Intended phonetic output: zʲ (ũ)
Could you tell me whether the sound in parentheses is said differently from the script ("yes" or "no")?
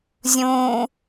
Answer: no